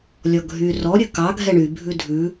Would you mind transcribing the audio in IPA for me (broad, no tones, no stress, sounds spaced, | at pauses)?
lʲ ɔ ɡʱ y r ɔ ɾʲ ɵ k ɑ ɡʱ ɛ ɳ y bʱ ʉ dʱ ʉ